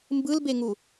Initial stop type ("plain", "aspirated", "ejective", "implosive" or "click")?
plain